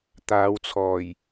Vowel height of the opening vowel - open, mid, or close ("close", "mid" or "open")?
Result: open